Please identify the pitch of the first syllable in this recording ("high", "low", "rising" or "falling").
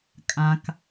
low